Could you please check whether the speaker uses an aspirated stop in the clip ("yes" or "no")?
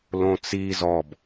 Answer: no